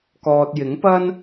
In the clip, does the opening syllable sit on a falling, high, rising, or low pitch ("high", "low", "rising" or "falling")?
low